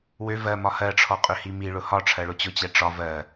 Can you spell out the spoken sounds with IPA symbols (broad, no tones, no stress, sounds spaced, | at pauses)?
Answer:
w ø v ɜ m ɒ h ɜ ʈ͡ʂʰ ɔ qʼ ø h i m i ɭ ʊ h ɒ ʈ͡ʂʰ ɜ ɭ ʊ t͡ɕ ʊ t͡ɕ ɛ ʈ͡ʂ ɒ v ɜ